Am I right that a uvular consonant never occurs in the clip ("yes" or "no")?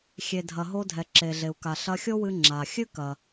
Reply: yes